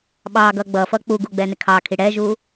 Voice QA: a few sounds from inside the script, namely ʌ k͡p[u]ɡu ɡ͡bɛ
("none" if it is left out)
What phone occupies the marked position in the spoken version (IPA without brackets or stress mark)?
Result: u